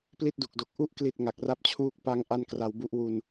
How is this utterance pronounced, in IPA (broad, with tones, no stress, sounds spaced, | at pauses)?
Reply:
p l i˥˩ t̚ d u˨˩ k̚ d o˨˩ k̚ ʔ u˦˥ ʔ k l i˨˩ t̚ ŋ a˨˩ k̚ r a˥˩ p̚ t͡ɕʰ uː˥˩ k̚ p a˦˥ ŋ ʔ a˥˩ n k r a˧ w b u˥˩ ʔ w u˧ n